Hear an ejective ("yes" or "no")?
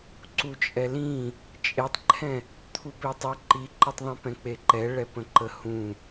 yes